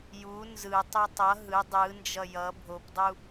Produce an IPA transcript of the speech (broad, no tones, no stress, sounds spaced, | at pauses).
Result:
j u n z ɯ tˤ o tˤ ʌ ɦ ɯ dˤ ɯ n d͡ʒ ʌ j ʌ bʱ o p dˤ u